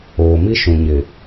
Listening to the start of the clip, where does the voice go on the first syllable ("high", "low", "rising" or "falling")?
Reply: low